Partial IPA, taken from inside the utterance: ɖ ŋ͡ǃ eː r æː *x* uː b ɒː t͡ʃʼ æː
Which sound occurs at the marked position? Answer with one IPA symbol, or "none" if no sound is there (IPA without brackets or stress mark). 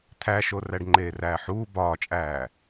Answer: ħ